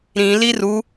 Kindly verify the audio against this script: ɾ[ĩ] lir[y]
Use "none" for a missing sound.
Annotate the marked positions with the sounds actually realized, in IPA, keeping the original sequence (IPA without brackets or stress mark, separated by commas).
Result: ĩ, u